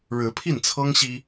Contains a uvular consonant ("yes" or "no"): no